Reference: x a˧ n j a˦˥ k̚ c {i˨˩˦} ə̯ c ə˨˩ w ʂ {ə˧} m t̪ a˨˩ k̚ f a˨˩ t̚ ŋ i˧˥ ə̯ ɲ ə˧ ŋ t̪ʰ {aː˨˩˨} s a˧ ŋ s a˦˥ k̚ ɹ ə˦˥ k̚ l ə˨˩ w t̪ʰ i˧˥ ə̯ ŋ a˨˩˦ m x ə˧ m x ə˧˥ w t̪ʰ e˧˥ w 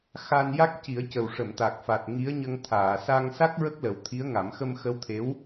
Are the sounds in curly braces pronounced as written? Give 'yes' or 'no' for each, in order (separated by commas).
yes, no, yes